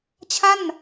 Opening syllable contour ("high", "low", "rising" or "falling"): falling